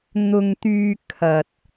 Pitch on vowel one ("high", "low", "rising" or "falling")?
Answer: low